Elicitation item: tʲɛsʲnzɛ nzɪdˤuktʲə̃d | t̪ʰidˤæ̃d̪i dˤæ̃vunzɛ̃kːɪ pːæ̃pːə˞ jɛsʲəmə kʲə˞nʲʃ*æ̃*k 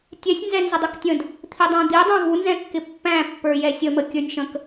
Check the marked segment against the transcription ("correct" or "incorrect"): incorrect